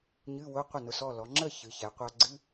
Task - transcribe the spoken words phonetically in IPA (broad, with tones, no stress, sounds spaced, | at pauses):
ɲ ɨ˧˥˧ w ʊ˧˥˧ qʷ ə˥˩ n ʊ˧ s ɔ˥˩ l ɔ˩˧ ŋ͡ǁ ə˥˩ ç ɨ˩˧ ç ɛ˩˧ qʷ a˧ ɡ͡ǀ ɨ˧˥˧